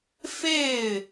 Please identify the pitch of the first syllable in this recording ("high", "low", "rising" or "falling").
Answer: falling